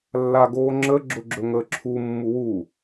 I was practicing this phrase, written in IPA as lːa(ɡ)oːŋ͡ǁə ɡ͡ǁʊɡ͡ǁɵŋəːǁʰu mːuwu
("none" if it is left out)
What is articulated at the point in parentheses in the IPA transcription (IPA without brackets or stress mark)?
ɡ